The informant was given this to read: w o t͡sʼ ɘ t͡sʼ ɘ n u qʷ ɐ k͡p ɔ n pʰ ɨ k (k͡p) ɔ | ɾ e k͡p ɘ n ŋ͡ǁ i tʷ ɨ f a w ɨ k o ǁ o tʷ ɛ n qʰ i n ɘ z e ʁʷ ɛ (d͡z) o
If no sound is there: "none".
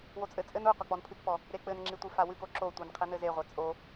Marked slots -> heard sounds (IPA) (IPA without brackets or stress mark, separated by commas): p, t͡sʼ